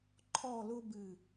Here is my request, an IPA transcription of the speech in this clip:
ǃʰ ɔ˥˧ l ʊ˥ b ɨ˧˩

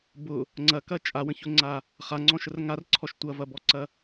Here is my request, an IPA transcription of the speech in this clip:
b ʊ | ŋ͡ǀ ɐ k ɐ t͡ʃʼ a w ə̃ ç ʊ ŋ͡ǀ a | χ a ŋ͡ǀ ɔ̃ ʃ ə r ŋ a r ǀʰ ɔ ʃ tʷ ɐ v ɐ b ɔ ǀ ɐ

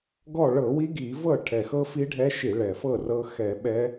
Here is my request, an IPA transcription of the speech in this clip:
ɡ ɔ˥˨ ɭ ɤ˧˩˧ w i˦˥ ɡ i˧˩˧ v ɤ˥˨ ʈʰ ɛ˨˩ x ɤ˦˥ f i˦˥ ɖʱ ɛ˦˥ ʃ i˧˩˧ ɭ ɛ˨˩ f ɤ˥˨ r ɤ˦˥ x ɛ˧˩˧ ɓ ɛ˦˥

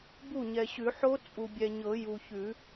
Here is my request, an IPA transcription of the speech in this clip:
b u˥˩ ɲ ɛ˨ ɕ ʉ˨˩˦ ħ o˦˥ t͡sʼ u˨ bʲ ɛ˨ ɲ ɤ˨˩˦ j u˨ ç ʉ˨˩˦

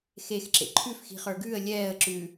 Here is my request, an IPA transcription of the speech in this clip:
x e x ǁ ḛ ǃʰ ʉ f x i̤ χ ə˞ ɡ ʉː ə̯ lʲ ɛː ə̯ ǁ ʉ

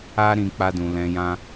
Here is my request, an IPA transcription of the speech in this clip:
a˦ ɾ ĩ˧ k͡p a˦ d ũ˧ l ɛ̃˧ j ã˦

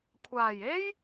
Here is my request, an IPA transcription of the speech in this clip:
kʷʰ aː˨˩ j e˥ j

